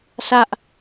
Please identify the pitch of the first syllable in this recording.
high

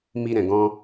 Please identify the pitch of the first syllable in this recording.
high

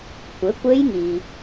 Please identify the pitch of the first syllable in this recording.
rising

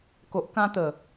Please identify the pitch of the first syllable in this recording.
low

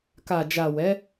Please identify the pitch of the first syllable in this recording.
low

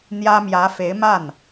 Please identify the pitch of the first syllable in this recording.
high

